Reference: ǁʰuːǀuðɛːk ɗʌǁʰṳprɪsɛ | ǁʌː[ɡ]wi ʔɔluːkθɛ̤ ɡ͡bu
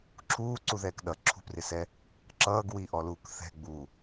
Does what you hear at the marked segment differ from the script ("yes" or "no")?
no